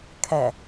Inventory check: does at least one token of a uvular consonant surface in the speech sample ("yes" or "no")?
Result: no